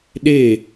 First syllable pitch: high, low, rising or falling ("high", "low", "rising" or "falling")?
falling